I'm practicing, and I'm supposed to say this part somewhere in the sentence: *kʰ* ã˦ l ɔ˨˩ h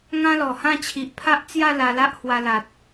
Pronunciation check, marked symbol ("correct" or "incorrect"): incorrect